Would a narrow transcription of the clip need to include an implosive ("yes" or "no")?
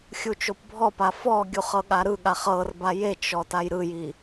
yes